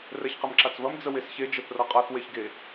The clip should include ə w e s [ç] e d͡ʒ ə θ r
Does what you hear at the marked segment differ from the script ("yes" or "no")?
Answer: no